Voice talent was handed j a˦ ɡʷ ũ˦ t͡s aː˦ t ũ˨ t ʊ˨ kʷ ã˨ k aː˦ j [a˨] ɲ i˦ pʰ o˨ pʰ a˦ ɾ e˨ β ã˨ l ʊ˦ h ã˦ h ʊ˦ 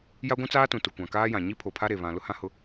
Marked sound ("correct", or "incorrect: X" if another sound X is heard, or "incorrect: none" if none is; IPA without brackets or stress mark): incorrect: ã˨